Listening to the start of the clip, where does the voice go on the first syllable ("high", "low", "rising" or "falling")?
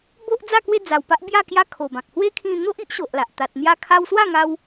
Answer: high